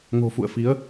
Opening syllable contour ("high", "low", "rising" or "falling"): low